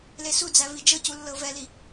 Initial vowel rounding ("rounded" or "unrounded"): unrounded